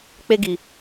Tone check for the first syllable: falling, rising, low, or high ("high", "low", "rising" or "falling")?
high